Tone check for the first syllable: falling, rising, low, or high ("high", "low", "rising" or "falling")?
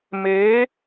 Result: rising